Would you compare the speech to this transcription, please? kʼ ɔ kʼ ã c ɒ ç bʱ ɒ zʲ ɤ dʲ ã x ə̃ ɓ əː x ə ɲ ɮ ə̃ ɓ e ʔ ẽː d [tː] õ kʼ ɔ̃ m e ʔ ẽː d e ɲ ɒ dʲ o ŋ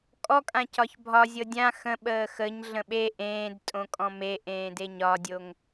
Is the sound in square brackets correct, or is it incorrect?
incorrect